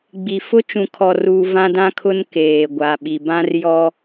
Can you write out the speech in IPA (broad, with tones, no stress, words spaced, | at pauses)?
ɡ͡bi˨ fʊ˦t͡ʃũ˨kʰɔ˨ruː˨ vã˦dã˦kʰʊ˦n keː˨ɡʷa˨ɓi˨ bã˦rjɔ˦